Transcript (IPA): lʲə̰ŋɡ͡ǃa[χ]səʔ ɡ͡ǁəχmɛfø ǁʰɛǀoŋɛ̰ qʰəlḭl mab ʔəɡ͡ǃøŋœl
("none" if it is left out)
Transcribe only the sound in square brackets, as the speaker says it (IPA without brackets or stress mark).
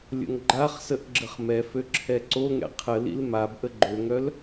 χ